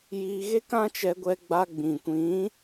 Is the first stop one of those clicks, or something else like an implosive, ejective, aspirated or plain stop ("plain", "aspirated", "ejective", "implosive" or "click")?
plain